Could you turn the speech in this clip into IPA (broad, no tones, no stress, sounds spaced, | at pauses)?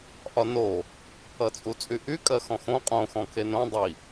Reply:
ʔ ɒ n o | ʌ t͡sʼ u t͡sʼ y ʔ y kʼ ɜ x ɔ̃ x õ qʼ õ x ɔ̃ kʰ e n õ dˤ i